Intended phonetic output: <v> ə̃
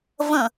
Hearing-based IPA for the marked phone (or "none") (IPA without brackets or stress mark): v